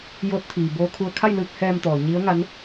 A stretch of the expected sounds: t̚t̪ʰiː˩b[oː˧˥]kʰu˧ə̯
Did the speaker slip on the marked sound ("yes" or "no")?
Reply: no